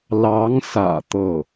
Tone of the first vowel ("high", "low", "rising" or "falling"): rising